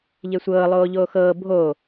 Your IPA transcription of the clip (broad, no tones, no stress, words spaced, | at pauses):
ʎesʷɤː lˠoːʎoːxɤː bʱo